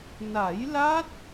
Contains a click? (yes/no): no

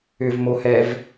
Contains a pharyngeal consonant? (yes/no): no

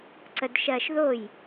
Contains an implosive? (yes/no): no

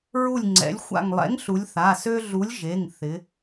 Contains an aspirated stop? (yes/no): no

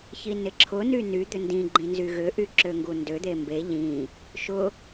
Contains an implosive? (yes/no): no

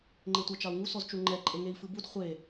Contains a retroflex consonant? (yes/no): no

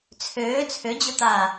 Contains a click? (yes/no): no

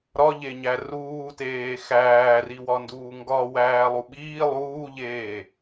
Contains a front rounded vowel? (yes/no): no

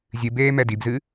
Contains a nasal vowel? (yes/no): no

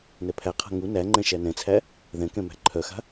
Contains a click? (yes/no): yes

